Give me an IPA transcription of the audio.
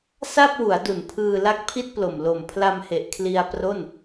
s a˥˩ p̚ w u˩˦ a̯ d u˩˦ n pʰ ɯː˧ l a˦˥ k̚ pʰ i˥˩ t̚ p l o˨˩ m l o˨˩ m pʰ l a˧ m h e˨˩ ʔ kʰ l i˧ a̯ p r o˥˩ n

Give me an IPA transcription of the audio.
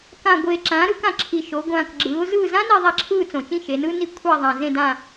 k ã˨˩ ɡʷ eː˨˩ ǁ ãː˩˧ ɾ ɯ˩˧ k ã˨˩ ǁʰ i˨˩ ʃ o˩˧ ɡʷ ãː˨˩ k ɡ͡ǁ ɯː˩˧ ʊ̯ z ɯː˦˨ z ã˥ n i˦˨ ðˤ a˦˨ ǁʰ ɯː˦˨ t͡s õ˨˩ t͡ʃ ĩ˦˨ ʃ e˩˧ n ɯː˥ n i˦˨ kʷʰ a˦˨ ðˤ ã˨˩ z ẽ˦˨ d ãː˦˨

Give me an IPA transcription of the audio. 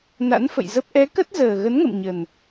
n a̰˧˥ n f ə̰˧˨ j z ə˦˥ p̚ ʔ ɛ˨˦ k ə˦˥ t̚ z əː˨˩ ɣ ə˨˦ n ŋ ə̰˧˨ m ɲ ə˨˩ n

